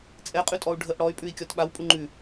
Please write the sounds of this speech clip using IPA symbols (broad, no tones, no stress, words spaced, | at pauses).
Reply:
t͡sʼɛqʼʉtʼɔu̯ ɖʱəʔ ɽɔy̯ pʼʉi̯kʲɔt ɓawpʼu ŋ͡ǃʉ